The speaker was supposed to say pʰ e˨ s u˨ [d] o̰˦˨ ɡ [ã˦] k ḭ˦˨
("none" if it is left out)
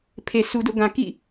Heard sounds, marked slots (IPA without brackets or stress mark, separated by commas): d, ã˨